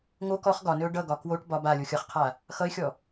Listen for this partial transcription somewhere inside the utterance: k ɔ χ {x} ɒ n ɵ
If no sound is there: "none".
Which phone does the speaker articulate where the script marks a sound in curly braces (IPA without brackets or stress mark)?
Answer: ɡ